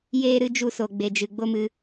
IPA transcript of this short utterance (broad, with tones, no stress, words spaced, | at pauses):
jeː˦ɾɨ˦d͡ʒu˦˨so˨ ɡ͡be˨d͡ʒɨ˨ ɡ͡bo˦mɨ˧